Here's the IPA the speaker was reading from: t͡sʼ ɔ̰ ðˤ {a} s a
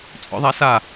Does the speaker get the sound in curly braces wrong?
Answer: no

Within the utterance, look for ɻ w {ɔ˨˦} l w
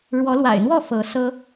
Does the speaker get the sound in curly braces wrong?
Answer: no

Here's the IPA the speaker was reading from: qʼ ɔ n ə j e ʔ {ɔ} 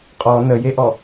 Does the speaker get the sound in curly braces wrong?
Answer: no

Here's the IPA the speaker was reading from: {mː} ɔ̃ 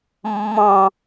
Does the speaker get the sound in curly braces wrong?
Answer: no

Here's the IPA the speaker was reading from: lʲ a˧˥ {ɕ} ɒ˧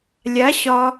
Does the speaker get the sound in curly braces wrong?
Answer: no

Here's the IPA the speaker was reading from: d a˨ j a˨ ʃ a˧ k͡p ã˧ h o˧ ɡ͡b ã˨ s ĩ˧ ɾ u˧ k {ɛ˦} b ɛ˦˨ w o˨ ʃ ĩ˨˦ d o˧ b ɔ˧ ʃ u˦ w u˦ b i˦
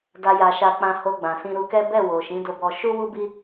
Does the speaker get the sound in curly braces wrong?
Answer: no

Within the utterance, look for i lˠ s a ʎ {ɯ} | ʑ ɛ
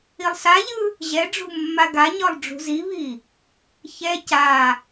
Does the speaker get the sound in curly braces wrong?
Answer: no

